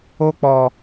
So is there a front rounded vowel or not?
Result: no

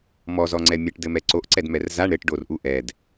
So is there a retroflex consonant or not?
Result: yes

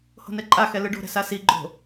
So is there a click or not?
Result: yes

